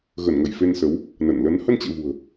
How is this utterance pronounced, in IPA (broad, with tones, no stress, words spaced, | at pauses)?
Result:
ɣə˧˩nŋə˧˩j fe˧nsə˨˦w | nə˧˩nlə˨˦n hə˧nt͡ɕḛ˧˨ vṳ˨˩ə̯